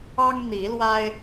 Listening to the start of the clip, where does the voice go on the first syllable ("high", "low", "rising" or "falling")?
high